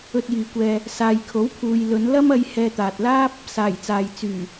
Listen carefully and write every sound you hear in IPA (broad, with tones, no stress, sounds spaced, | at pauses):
ɵ˧ t̚ j iː˨ kʷ ɛː˧ | s aː˨ j kʰ o˨˥ w pʰ uː˨ j l ɵ˨˧ n l ɐ˥ m ɐ˧ j h ɛː˧ t̪ aː˨ t̚ l aː˥ p̚ | s aː˨˩ j t͡s aː˨ j t͡s yː˨˩